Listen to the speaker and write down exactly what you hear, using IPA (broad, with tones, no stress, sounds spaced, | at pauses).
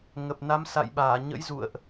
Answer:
ŋ ə˨˩ p̚ n a˨˦ m s a̰˧˨ j ɓ aː˧˩ ɲ ə̰˧˥ j z ṵ˧˨ ə̯ ʔ